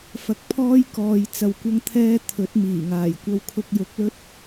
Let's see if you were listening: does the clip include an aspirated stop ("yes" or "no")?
yes